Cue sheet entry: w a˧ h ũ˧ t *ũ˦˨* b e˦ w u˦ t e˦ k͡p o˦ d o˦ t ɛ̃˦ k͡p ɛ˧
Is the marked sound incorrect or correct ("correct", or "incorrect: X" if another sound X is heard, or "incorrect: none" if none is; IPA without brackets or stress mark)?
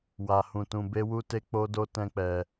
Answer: incorrect: ũ˧